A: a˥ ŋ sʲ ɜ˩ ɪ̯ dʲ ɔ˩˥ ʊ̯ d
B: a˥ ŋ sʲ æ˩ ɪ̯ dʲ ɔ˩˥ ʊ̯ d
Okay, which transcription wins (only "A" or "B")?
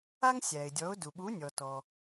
B